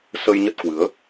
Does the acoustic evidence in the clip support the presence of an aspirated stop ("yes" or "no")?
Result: no